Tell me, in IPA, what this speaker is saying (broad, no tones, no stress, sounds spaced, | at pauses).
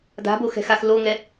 d a̤ b o x ɛ̤ x a x l o ŋ ɛ